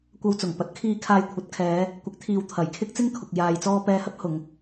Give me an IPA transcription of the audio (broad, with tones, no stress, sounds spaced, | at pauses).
kʷ ɐ˧ w t͡s ʊ˨˩ ŋ p ɐ˨˥ t̚ kʰ iː˧ kʰ aː˧ j kʷʰ ɐ˨˥ t̚ kʰ ɛː˨˧ | kʷ ɪ˨˥ k̚ t̪ʰ iː˨ w t̪ʰ ɐ˨˩ j kʰ ɪ˥ k̚ t͡s ɪ˥ ŋ kʰ ʊ˨ k̚ j aː˨ j t͡s ɔː˧ p ɛː˧ h ɐ˥ p̚ h ʊ˨˧ ŋ